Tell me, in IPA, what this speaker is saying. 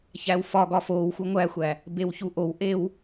ç æ w f ɒ ɡ ɒ f oː w x u ŋʷ æ xʷ æ | b e w ç u ʔ o w ʔ e w

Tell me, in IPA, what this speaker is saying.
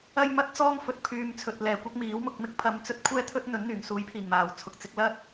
ɐ˥ j m ɐ˥ t̚ t͡s ɔː˥ ŋ f ɵ˨ t̚ pʰ yː˨ m t͡sʰ ɵ˨ t̚ l ɛː˨˩ kʷ ɐ˥ k̚ m iː˨˥ w m ʊ˧ k̚ m ɪ˥ k̚ pʰ ɐ˧ m t͡s ɵ˥ t̚ kʷʰ ɛː˥ t̪ʰ ɵ˥ t̚ n̪ ɵ˨˥ n n̪ yː˨˩ ŋ s uː˨˥ j pʰ iː˨˩ ŋ m aː˨˩ w t͡sʰ ʊ˨ k̚ t͡s ɪ˨˥ k̚ l ɐ˥ t̚

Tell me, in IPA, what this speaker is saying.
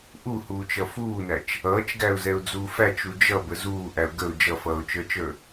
ʔ u h uː t͡ʃ ʌ f uː n æ t͡ʃ | ʌː t͡ʃ ɡ æ ʊ̯ z ɛ ʊ̯ d͡z uː f æ t͡ʃ u d͡ʒ ʌ b ə z uː ʔ æ ʊ̯ ɡ ə ʊ̯ d͡ʒ ʌ f ʌː ʊ̯ t͡ʃ ə˞ t͡ʃ ə˞

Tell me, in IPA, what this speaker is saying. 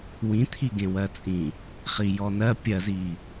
w ĩ t̪ʰ i ɡ ẽ w ɜ t͡sʼ ĩ | χ i j ɔ n ɜ pʲ ɜ z i

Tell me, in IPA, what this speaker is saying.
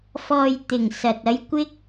f ɔː˨ j t̪ ɪ˨˩ ŋ s ɐ˨ t̚ ɐ˧ j kʷ ɪ˥ k̚

